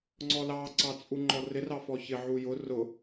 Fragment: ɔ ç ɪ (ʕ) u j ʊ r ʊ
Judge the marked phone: correct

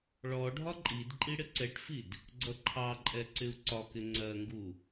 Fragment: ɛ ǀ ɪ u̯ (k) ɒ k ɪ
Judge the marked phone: incorrect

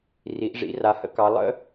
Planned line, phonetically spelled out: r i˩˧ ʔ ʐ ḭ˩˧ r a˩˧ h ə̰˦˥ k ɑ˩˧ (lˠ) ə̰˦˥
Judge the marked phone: correct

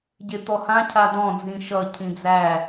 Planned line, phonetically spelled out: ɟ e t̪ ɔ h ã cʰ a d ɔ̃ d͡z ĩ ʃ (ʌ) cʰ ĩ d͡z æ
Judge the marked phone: correct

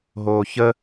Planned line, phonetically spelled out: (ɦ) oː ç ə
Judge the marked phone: correct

